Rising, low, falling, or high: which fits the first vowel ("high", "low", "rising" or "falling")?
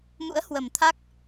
rising